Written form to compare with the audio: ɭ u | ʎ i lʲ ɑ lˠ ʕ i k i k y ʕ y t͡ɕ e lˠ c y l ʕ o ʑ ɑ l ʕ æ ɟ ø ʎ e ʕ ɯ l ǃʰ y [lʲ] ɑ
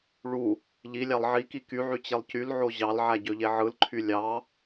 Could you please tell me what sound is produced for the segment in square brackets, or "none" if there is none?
lʲ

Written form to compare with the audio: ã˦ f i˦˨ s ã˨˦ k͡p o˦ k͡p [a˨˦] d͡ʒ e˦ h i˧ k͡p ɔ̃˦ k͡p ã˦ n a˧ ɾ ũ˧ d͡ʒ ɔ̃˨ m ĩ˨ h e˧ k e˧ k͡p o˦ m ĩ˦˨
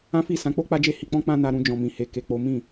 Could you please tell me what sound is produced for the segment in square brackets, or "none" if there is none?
a˦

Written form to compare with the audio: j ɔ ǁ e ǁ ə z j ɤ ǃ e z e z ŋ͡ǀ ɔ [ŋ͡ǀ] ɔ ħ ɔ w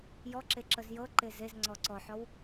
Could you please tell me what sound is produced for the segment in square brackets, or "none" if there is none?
ǀ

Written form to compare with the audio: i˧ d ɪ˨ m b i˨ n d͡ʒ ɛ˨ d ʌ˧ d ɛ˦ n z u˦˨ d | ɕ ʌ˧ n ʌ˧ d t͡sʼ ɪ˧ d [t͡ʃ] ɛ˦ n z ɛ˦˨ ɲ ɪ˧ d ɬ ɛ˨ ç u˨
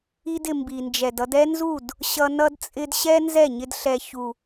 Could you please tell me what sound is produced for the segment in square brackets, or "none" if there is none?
ɕ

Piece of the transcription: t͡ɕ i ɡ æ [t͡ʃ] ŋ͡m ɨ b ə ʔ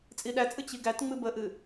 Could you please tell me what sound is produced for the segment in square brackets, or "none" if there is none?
t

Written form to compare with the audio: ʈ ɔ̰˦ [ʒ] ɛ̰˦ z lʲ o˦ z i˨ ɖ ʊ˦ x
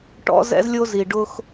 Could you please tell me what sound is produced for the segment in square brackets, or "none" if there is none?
z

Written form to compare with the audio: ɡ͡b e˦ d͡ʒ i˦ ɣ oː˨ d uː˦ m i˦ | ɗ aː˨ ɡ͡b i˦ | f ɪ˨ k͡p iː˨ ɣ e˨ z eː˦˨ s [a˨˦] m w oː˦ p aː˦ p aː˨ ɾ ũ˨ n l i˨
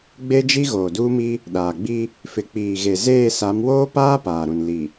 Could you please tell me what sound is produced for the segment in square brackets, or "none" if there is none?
a˨˦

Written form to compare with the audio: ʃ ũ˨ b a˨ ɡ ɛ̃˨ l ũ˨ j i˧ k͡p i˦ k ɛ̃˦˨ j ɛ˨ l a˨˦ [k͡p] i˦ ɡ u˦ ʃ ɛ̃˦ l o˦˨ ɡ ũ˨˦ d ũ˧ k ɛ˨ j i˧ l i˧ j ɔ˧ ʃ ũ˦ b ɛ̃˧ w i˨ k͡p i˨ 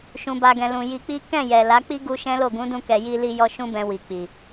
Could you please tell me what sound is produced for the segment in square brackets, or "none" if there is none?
k͡p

